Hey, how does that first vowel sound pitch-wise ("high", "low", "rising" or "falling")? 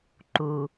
low